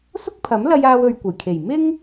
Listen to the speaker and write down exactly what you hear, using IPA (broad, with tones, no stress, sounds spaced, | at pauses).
s ʊ˥ k̚ pʰ ɐ˨˥ m l ɐ˧ j aː˧ w ɵ˧ ɥ kʷ ɐ˨˩ j kʰ e˨˩ j m ɪ˥ ŋ